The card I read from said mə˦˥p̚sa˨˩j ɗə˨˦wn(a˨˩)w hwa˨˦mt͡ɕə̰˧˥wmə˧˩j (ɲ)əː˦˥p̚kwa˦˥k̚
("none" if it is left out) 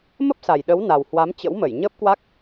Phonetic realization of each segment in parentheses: a˨˩, ɲ

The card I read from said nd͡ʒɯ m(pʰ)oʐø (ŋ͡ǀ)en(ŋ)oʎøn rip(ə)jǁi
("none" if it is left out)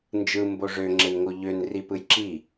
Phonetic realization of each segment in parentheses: b, ŋ͡ǁ, ŋ, ɯ

